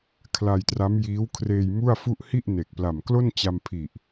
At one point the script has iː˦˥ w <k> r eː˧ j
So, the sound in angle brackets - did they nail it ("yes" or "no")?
no